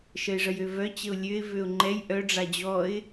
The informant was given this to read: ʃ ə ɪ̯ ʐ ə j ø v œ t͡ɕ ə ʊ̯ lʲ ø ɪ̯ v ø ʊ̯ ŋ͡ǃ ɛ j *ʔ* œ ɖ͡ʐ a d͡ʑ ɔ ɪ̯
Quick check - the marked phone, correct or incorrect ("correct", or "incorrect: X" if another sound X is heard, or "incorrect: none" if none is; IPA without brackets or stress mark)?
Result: correct